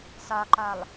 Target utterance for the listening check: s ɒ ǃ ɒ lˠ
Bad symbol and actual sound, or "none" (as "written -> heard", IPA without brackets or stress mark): none